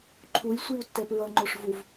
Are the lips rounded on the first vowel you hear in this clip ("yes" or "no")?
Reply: yes